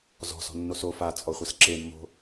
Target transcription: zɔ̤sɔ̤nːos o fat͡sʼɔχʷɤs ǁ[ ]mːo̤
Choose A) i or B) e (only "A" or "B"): B